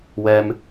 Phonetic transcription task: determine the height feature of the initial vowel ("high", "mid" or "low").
mid